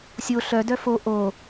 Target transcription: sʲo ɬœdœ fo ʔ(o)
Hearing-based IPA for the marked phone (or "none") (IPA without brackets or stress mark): o